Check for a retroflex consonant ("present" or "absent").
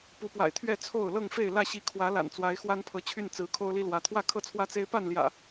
absent